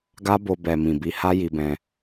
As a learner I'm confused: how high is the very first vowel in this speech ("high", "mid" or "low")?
low